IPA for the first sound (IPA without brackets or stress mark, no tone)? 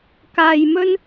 k